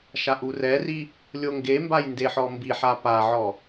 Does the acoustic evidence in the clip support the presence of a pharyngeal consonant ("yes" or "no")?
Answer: yes